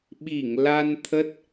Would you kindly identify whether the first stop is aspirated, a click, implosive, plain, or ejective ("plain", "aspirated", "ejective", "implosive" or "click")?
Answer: implosive